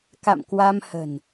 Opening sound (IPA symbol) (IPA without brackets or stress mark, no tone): k